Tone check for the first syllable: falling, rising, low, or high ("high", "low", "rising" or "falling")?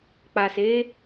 low